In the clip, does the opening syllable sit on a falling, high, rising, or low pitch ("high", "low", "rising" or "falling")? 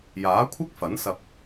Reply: rising